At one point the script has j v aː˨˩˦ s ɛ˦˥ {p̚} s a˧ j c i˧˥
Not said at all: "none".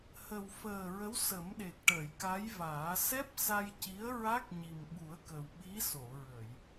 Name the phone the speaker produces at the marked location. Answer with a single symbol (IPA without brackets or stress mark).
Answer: p̚